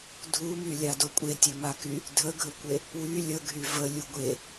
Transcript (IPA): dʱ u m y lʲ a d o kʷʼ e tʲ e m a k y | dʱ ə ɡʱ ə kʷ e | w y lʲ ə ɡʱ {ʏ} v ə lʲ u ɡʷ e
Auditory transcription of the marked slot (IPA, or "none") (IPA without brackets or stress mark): y